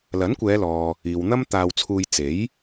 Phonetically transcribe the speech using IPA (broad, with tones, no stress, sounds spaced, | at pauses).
l ɐ˨˥ n kʷ ɛː˨˧ l ɔː˨ | iː˨ w n̪ ɐ˥ m t̪ aː˧ w t͡sʰ uː˧ j t͡s e˨˥ j